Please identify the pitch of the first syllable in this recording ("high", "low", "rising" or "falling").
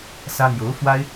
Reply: high